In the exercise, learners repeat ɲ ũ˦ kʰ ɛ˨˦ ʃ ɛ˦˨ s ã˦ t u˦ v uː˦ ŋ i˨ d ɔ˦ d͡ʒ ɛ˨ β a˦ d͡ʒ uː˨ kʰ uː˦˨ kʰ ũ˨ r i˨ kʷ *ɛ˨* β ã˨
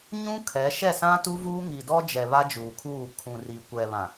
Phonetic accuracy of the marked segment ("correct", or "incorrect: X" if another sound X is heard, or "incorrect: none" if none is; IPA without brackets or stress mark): correct